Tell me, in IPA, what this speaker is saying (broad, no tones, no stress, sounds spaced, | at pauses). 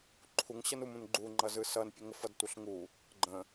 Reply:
ǃʰ u ŋ ɕ ʌ n u m ũ n ɡ͡ǃ u ŋ͡ǃ ʌ z ɯ s ʌ n pʲ ə ŋ ə f ʌ d tʷ ʌ ɬ ŋ u | ɡ͡ǃ ə̃